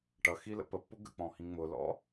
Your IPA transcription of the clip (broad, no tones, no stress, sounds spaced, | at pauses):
ʈ ʌ x i l ə̰ p ə pː ʊ ɡ ə̰ k͡p ɔ̃ h ĩ ŋ͡m ʊ l ɔ̰